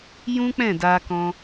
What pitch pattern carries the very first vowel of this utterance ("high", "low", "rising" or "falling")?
high